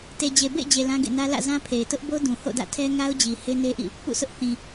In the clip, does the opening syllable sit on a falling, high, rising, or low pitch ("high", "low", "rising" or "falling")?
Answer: low